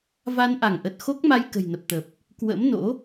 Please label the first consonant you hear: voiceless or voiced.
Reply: voiced